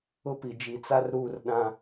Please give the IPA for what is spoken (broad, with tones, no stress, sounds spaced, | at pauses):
ʊ˦ p i˨ d͡ʒ i˨ t͡s a˦ r ɾ uː˦˨ r ɗ ã˦